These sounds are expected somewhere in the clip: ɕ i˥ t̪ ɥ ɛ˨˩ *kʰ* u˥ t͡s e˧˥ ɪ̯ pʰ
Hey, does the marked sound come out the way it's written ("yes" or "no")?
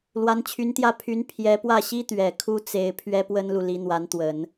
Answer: yes